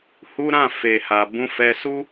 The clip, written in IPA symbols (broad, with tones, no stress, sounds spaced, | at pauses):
h u˦ ɾ ã˦˨ f e˨ h a˨ b ũ˧ f ɛ˧ s u˦